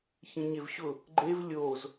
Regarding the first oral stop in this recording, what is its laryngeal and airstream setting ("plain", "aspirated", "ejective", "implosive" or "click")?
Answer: click